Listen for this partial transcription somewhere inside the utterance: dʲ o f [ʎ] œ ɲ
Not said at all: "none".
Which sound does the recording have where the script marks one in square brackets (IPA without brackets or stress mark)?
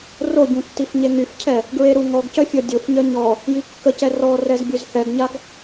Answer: ɲ